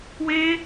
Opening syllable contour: high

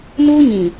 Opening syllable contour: high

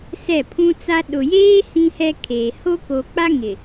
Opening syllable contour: falling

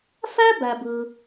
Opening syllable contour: high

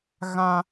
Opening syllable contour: high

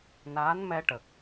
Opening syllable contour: rising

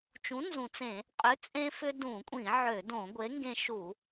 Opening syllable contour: rising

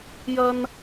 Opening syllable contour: high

